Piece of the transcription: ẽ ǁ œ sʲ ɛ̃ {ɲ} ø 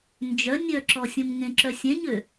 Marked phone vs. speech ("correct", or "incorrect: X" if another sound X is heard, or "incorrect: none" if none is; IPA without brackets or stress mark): correct